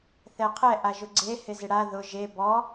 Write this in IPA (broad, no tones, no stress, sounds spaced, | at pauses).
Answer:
θ ɛ qʰ ɛ ʔ a ʒ ʊ ɡ͡ǀ e h ɪ z ɪ ɽ a ð ʊ ʒ e b ɔ